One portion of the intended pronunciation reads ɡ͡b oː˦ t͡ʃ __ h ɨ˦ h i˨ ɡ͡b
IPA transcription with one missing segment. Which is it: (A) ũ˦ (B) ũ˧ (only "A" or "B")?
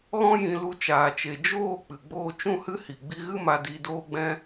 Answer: A